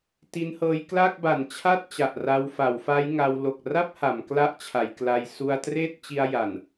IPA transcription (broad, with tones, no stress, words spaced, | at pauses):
ti˦˥nhɤː˦˥j kla˥˩k̚ba˨˩nt͡ɕʰa˥˩t̚ t͡ɕa˨˩ʔra˧w fa˩˦wfa˦˥jŋa˧w lo˨˩k̚ra˥˩p̚ ha˩˦mkla˥˩ʔt͡ɕʰa˩˦jkla˧j su˧a̯treː˥˩t̚t͡ɕi˧a̯ ja˨˩n